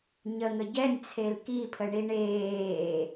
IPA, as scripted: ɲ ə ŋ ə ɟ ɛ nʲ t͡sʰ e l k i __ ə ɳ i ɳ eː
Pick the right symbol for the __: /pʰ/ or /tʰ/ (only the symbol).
pʰ